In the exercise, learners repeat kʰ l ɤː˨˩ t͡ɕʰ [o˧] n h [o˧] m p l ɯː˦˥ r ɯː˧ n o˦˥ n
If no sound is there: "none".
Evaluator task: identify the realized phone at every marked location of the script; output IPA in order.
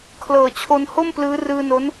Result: o˧, o˥˩

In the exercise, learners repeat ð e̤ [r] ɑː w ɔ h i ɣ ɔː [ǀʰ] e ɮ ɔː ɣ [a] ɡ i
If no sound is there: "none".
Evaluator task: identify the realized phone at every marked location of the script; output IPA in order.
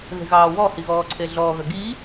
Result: ɣ, ǀʰ, ɐ

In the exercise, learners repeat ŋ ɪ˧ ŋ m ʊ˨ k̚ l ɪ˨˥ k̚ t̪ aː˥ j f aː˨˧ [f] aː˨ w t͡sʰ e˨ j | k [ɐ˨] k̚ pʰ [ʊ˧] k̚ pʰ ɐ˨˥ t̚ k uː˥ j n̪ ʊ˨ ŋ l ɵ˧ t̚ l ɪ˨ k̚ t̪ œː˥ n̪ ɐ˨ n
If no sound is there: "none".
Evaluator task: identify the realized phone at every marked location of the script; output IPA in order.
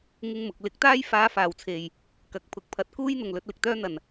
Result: f, ɐ˨, ʊ˨˥

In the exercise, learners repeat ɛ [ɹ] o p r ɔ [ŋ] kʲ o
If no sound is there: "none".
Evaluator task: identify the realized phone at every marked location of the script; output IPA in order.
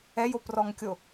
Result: j, ŋ

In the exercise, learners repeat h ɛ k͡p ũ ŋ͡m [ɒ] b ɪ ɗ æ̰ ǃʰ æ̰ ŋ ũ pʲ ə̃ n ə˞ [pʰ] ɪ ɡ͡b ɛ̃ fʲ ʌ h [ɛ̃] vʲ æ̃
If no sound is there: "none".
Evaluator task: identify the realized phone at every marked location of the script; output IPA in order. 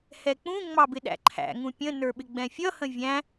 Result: ɑ, ɓ, ə̃

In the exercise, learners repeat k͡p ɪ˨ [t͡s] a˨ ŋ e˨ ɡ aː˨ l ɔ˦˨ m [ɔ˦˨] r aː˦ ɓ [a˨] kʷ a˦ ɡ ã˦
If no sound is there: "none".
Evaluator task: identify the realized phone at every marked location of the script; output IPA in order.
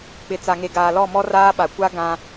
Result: t͡s, ɔ˦, a˨

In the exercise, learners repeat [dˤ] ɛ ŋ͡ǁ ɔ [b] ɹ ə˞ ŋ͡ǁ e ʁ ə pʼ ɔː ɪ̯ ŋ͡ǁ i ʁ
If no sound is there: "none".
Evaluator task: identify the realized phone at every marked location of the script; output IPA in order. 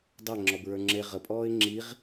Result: dˤ, b

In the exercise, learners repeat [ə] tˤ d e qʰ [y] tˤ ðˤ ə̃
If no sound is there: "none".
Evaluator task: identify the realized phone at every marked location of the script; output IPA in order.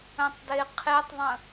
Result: ə̃, e

